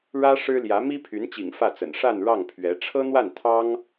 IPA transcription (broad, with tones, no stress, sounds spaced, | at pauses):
ɻ ä˥ ʂ ɻ̩˥ l j ä˧˥ m i˥ pʰ y˧˥ n t͡ɕ ḭ˨˩ ŋ f ä˥˩ t͡s ə̰˨˩ n ʂ a˥˧ n ɻ ɑ˥˩ ŋ pʰ ɥ ɛ˧˥ ʈ͡ʂʰ ɤ˥ n̪ w a˥˩ n t̪ʰ ɑ˥ ŋ